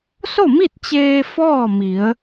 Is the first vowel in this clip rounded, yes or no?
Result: yes